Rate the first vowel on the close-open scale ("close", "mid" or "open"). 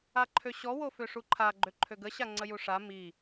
open